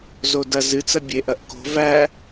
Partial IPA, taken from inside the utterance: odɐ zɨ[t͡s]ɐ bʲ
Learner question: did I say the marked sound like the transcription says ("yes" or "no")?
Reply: yes